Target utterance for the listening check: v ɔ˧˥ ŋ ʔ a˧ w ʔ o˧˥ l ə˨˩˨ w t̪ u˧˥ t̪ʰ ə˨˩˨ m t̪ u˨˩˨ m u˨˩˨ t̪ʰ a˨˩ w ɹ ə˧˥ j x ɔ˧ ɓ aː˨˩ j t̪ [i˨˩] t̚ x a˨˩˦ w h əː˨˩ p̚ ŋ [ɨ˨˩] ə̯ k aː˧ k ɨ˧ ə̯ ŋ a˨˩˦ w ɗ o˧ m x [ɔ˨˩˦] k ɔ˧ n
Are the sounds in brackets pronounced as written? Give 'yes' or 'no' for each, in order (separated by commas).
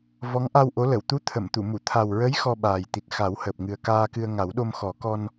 yes, yes, yes